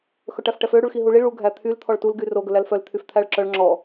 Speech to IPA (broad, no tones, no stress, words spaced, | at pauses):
xɵʈæfʈɛfø ɽuɭxiɦuɭi ɭu ɡʱæt̪ʰyl t̪ʰɔɭtul ɡyro ɡɵlælfœl t̪ʰyft̪ʰæɭǁœɭ ŋ͡ǁɔ